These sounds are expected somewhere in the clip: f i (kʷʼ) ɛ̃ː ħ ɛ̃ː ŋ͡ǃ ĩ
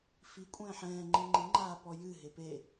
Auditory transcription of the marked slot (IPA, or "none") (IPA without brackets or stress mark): kʷʼ